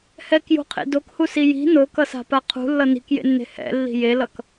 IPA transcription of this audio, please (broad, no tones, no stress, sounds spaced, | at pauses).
h ɛ k j ṳ qʰ ḛ d o k h u s i j i̤ n o k ʌ s a̤ p a qʰ ṳ lː ʌ n i̤ k j ḛ nː e̤ h ɛ̰ lː i̤ j e l ʌ k